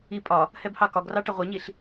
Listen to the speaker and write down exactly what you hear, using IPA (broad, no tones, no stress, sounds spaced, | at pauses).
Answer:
i pʼ ɒ | h ɛ b h ɑ k ɒ ɡ r ɑ ʈ ʌ ʁʷ ʌ ɲ i ɬ